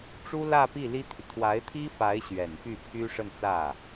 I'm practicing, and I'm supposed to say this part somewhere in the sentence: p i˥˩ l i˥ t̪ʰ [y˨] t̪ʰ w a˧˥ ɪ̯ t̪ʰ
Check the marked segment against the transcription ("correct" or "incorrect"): correct